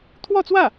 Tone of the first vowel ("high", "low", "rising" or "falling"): falling